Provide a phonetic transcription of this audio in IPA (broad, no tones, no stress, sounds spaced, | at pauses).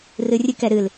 r ɨ rʲ ɨ k ɛ ɾ ɨ l